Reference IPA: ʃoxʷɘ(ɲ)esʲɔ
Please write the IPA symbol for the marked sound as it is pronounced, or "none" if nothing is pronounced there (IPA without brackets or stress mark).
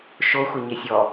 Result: ɲ